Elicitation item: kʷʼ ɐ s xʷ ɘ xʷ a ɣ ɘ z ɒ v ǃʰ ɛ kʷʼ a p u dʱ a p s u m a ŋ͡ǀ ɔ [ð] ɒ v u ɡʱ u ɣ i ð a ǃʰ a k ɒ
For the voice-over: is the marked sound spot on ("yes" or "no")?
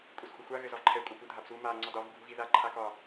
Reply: no